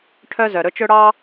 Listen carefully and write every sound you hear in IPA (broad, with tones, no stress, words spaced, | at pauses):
ʈʰœ˥zœ˩ ɾɵ˥t͡ʃɵ˥ ɽɑ˥